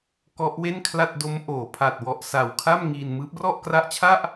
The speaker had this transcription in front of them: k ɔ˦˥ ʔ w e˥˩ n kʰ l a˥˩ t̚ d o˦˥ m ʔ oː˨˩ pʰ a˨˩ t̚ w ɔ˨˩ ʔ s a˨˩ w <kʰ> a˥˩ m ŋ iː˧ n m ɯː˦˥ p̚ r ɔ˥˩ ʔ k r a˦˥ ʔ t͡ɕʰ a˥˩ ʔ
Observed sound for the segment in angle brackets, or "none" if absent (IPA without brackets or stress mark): kʰ